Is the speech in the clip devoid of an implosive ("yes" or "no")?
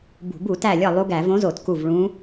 yes